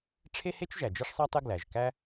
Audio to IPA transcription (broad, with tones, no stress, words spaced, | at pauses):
ʈ͡ʂʰe˥he˥t͡ʃ ʒæ˩d͡ʒi˥ʂsˤæ˥tˤe˥ ɡlæ˩ʒkæ˥